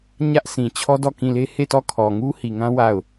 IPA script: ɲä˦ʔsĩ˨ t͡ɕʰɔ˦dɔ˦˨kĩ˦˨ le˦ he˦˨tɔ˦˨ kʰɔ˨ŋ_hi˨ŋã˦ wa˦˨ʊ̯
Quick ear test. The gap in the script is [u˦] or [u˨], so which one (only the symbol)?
u˦